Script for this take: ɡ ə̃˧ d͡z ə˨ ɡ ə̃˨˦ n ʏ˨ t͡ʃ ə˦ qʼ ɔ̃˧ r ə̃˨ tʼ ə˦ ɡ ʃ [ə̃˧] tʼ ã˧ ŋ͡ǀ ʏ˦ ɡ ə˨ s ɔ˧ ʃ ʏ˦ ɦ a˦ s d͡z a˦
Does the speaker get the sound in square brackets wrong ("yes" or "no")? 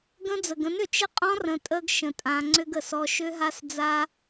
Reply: no